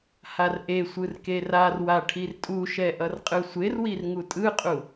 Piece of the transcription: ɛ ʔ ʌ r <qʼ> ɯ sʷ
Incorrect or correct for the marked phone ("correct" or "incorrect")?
correct